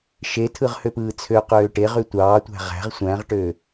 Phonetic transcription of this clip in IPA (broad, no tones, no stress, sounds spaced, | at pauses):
ʃ e tʰ ɯ ʁ h ø p ɯː t͡sʰ ø q øː ʈ e ʁ y tʷ ɑː tʷ æ̤ ʁ æ̤ ʁ sʷ æ̃ ʁ ʈ ø